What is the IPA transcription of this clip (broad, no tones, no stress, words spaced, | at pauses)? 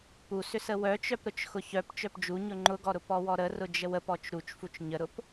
pusʏsə wœt͡ʃœpɾʊt͡ʃ xʊçœp t͡ʃœpd͡ʒu ɲʊŋ͡ǃʊɡɔɾʊ pɔwɔɾərʊ d͡ʒəwəpɔt͡ʃ ɾut͡ʃfut͡ʃ ɲəɾʊp